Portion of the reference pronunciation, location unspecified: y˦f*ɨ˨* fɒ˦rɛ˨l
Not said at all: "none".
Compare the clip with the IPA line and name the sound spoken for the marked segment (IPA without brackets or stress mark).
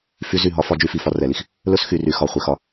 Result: i˨